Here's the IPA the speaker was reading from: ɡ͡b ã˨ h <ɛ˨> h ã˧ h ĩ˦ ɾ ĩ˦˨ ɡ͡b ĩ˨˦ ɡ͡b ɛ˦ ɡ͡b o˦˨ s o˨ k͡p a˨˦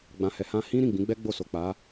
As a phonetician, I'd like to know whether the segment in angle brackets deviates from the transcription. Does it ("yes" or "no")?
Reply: no